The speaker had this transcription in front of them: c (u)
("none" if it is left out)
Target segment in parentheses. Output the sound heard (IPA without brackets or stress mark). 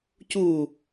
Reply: u